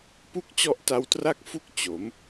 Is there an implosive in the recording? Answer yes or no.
no